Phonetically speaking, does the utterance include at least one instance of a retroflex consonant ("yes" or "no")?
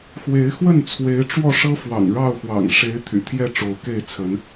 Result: yes